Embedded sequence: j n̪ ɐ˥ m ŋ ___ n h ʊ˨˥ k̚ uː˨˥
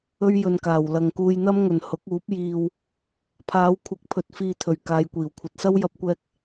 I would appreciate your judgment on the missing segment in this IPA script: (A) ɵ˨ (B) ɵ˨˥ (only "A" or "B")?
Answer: A